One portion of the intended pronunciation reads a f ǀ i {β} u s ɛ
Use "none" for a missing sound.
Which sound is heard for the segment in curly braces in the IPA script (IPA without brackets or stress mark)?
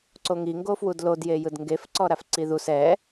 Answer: ð